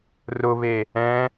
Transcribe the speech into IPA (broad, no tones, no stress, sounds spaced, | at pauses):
r ʊ β e | ɛ̃